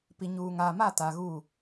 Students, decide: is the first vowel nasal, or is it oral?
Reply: oral